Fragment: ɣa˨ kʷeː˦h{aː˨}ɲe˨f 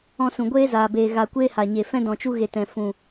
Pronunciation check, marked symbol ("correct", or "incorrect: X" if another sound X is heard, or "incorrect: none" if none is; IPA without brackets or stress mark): incorrect: a˨